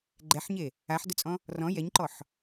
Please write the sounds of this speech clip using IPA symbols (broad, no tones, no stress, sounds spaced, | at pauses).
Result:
ɡ͡ǃ ɛ ħ ɲ e | a ħ d ʊ t͡sʼ ɔ̃ | r ɔ̃ j ɛ ɲ ǃ ɔ ħ